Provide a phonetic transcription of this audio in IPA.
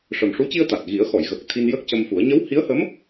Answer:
ʂ ə˨˩ m ʂ u˧˥ c i˧ ə̯ t̪ a˨˩ t̚ ɣ i˨˩˦ ə̯ x ɔ˨˩˨ j ɣ ə˨˩ k̚ t̪ʰ i˧ n j ə˦˥ k̚ c ə˧ m f u˨˩˦ ə̯ ɲ ə˧˥ w h i˧˥ ə̯ h ə˧˥ m

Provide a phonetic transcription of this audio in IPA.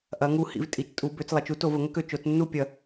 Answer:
ʔ ɐ˩˧ ŋ u˧˩ h ḭ˩˧ v tʼ i˩˧ t͡ʃ tʼ u˩˧ b ø˩˧ t͡s lˠ ɐ˩˧ t͡ʃ u˦ t o˧˩˧ v ə˩˧ ŋ ə˦ k ø˧˩ t͡ʃ o˩˧ t͡s nː u˥˩ pʲ ɐ˧˩˧

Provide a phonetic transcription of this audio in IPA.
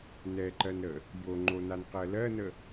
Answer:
n ɛ ǃ ɜ n ɾ ə | j o ŋ͡ǃ o n a n q ɜ l ɜ n ə

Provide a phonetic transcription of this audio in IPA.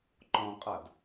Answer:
ǃ ɔ̃ qʼ a d

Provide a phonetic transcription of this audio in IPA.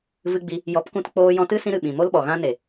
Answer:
v ɨ˧ ɡ͡b i˧ | j ɔ˨˦ p k ũ˧ t k͡p oː˧ j ɔ̃˧ t ɨ˦ s ĩ˧ ɾ ɨ˨ ɓ ĩ˨ m o˦ l ɓ ɔ˨ ɣ ã˧ n e˨

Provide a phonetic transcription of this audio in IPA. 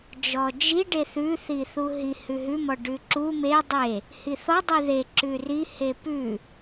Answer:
d͡ʒ ɔ d͡ʒ i ɖ e θ ʉ θ i θ u ɦ i h ʉ ɦ ʉ m ɔ ɖ ʉ ǁ u m e dˤ e | h i θ ɔ dˤ i ð e ǁ ʉ r i h e p ʉ

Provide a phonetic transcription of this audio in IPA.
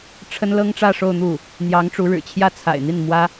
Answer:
ʈ͡ʂʰ ə˥ n l ɤ˥ ŋ ʈ͡ʂ ä˥˧ ʂ o˥˧ ʊ̯ n̪ u˥˩ | n̪ j ɑ˧˥ ŋ ʈ͡ʂ u˧˥ ɻ ɻ̩˨˩ t͡ɕʰ j ä˥˩ t͡sʰ a̰˨˩ ɪ̯ n̪ i˥˩ n m w ä˥

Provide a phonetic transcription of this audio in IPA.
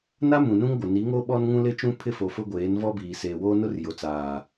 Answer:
n a˦ m ũ˨ n ũ˦ ŋ ɡʷ ɪ˨ n i˨˦ ŋ o˦ ɓ ɔ˦ n ŋ ũ˦ l ɪ˦ t͡ʃ ũ˦ pʰ ɪ˦ f o˨ f ʊ˦ ɡʷ eː˨˦ n v ɔ˦ b iː˨ s eː˨ w oː˦ n ʊ˦ r j o˨ t͡s aː˨

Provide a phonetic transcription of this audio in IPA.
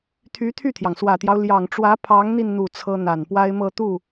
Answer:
t̪ʰ y˧˥ t̪ʰ y˥˩ t̪ʰ j ɑ˩ ŋ s w ä˨˩ t̪ j ɑ˦ ʊ̯ l j ɑ˨˩ ŋ ʈ͡ʂ w ä˧˥ pʰ ɑ˧˥ ŋ n̪ i˧ n n̪ u˥˩ t͡sʰ ɤ˥ n̪ a˨˩ n p w a˥ ɪ̯ m ɤ˥˧ t̪ u˥˩

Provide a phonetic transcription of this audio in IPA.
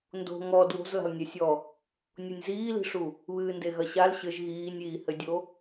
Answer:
n d o̤ ŋ ɔ d w o̤ z l a̤ l nʲ ɛ sʲ ɔ | nʲ o nʲ z iː l i̤ ʂ u | β ɨː n d e ɣ ɐ ɕ a l ɕ ɘ ʒ ɣ iː nʲ iː h ɘ dʲ o

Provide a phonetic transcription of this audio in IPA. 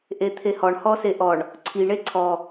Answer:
ʔ e t̪ʰ e h ɔ ɳ h ɔ s e ʔ ɔ ɳ | ǀʰ i ɳ e ǀʰ ɔ

